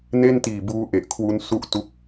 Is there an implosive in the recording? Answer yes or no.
no